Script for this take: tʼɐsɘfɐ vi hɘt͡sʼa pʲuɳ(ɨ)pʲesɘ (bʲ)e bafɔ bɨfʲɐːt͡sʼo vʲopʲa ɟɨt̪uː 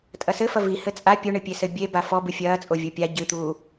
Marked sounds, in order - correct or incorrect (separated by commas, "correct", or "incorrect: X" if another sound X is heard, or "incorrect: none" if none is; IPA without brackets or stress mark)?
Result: correct, correct